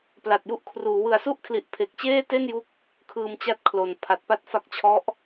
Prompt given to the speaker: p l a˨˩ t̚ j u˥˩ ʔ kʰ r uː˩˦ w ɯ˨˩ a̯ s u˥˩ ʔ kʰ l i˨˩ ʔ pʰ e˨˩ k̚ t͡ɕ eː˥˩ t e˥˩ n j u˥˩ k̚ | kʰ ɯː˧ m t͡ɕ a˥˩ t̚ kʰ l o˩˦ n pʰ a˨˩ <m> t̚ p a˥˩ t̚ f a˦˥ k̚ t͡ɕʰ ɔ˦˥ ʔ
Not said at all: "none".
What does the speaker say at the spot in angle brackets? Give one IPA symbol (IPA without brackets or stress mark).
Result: none